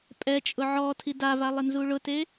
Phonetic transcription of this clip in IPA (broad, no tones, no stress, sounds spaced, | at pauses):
pʼ ɛ t͡ʃʼ ʊ ʕ ɔ tʰ i d a v a lˠ ɪ n z u ɭ ʊ t e